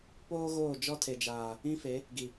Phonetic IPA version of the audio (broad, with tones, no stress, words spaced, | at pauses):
poː˦ɣoː˦˨ d͡ʒɔ˦tʰe˨d͡ʒaː˨ | ĩ˦fe˨˦ | ɡi˨